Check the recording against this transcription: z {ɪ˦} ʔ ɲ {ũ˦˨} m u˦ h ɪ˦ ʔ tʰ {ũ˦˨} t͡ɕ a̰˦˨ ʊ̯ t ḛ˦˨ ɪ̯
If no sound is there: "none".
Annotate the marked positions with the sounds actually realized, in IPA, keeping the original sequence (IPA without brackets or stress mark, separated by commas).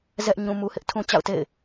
ɛ˦, ũ˦, ũ˦